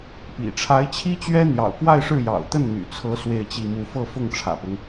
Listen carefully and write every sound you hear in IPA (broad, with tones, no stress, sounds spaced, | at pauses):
p ḭ˨˩ ʈ͡ʂʰ a˧˥ ɪ̯ t͡ɕʰ i˥ t͡ɕ ɥ ɛ˥ n̪ j ɑ̰˨˩ ʊ̯ k w a˥˧ ɪ̯ ʂ ɻ̩˥˩ j ɑ̰˨˩ ʊ̯ t̪ ə˥˩ n n̪ y̰˨˩ t͡sʰ ɤ˧˥ s w e˥˧ ɪ̯ t͡ɕ i˥˧ m u˥˧ f ɤ˥˧ f ʊ˥˩ ŋ ʈ͡ʂʰ ä̰˨˩ p ʊ˦ ŋ